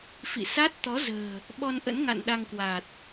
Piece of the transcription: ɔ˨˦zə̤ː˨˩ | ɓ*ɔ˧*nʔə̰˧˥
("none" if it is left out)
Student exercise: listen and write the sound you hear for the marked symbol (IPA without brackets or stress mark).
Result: ɔ˧